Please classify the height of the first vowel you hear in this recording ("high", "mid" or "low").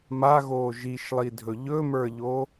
low